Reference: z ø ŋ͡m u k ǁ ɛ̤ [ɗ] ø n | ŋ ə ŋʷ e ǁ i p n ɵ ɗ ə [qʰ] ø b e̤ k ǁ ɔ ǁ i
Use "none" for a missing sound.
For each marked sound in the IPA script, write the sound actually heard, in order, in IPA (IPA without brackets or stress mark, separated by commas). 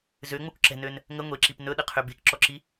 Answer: n, qʰ